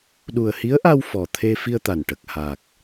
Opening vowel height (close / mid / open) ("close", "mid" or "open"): close